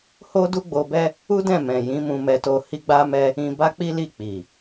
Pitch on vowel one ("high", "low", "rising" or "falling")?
high